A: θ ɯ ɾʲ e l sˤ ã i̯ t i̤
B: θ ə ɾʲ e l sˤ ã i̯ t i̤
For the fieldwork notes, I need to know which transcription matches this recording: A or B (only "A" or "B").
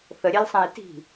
B